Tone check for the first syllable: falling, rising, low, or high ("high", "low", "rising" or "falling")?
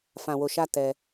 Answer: low